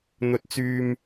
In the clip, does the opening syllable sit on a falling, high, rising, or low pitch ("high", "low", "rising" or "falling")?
low